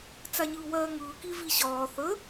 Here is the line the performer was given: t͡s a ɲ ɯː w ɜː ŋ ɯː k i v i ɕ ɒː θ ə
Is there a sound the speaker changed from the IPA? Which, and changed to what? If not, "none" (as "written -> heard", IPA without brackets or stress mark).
none